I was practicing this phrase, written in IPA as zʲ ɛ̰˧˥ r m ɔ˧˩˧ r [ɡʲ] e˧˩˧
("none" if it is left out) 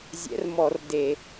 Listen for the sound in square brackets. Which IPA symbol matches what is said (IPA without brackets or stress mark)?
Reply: d